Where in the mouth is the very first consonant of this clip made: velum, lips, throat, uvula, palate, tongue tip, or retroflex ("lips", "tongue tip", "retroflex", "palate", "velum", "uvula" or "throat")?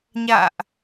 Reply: palate